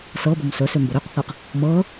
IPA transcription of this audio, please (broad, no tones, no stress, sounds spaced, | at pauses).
s ɤ b o m s ɵ s ø m b o ɾ ø q θ ɤ q | m ɤ